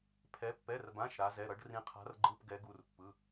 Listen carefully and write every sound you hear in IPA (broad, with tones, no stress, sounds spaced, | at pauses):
pʰ ɛ˩˧ pː ɛ˩˧˩ r b ã˩˧˩ ʃ ɾ a˩˧ z ɛ˩˧˩ ɾ ʌ˩˧ ɖ r ĩ˩˧ qʰ a̤˩˧ r ɡ͡ǃ ɯ˩˧˩ p ɡ ɛ˩˧ ɡ u˩˧˩ r pː ɯ˩˧˩